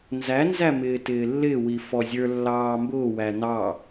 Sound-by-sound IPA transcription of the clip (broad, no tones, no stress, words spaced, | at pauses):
nzænzæmɪː tɪːlːɪwi fɔzʲə˞ lːɑːmbʊːwæ nɑ